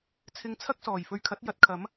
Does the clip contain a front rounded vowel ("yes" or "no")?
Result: no